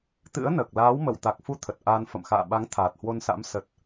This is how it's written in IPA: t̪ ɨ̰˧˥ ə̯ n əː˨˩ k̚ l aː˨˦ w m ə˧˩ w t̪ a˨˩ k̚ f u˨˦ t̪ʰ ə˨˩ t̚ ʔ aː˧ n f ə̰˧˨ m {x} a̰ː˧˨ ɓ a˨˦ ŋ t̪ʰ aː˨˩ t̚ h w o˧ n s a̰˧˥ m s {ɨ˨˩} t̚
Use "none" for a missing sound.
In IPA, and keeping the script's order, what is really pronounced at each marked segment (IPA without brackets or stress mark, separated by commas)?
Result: x, ə˨˩